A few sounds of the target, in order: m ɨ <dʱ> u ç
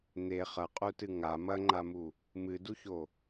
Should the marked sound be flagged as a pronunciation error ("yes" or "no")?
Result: yes